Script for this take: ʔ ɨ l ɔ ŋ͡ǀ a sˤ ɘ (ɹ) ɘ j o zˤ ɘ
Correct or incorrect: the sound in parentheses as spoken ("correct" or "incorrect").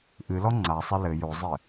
incorrect